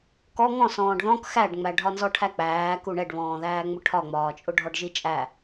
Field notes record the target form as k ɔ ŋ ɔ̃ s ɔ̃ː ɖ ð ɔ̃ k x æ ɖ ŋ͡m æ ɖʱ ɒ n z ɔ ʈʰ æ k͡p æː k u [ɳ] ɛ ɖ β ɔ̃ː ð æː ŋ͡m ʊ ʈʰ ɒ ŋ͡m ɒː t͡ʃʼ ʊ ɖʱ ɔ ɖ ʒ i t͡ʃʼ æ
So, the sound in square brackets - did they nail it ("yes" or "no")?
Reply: yes